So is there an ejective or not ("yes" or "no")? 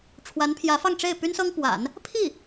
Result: no